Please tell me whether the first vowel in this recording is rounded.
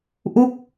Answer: yes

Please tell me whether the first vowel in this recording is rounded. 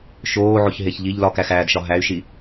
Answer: yes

